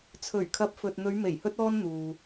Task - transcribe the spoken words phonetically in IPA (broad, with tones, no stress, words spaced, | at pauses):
t͡sʰɵ˨˩ɥkʰɐ˨˥p̚ fɵ˨t̚n̪ɵ˨˧ɥ me˨˩jhɵ˧t̚ɔː˧n n̪uː˨